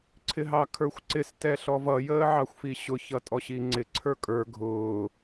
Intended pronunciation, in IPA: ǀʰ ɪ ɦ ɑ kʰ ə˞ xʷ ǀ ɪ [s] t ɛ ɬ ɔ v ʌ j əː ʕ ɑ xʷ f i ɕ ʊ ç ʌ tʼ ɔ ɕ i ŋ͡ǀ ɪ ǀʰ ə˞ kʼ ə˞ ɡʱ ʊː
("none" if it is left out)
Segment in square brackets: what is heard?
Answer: s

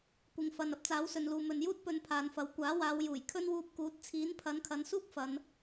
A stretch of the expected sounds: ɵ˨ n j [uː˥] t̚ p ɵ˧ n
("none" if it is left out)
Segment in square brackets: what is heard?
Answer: uː˥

